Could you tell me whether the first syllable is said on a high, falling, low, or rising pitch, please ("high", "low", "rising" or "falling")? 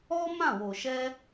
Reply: high